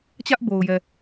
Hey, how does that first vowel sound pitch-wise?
high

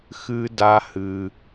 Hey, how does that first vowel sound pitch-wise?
high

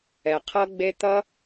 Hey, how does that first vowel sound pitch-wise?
low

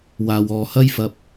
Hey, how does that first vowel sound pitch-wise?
low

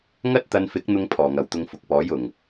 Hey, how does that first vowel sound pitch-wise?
high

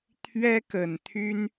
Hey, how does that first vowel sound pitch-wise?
high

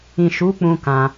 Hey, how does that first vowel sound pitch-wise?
low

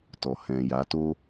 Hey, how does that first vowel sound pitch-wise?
low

